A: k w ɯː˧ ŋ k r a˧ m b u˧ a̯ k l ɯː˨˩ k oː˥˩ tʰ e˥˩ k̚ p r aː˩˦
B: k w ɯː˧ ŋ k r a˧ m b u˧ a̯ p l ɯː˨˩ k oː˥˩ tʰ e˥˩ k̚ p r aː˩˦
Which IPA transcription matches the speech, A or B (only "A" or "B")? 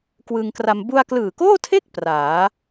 A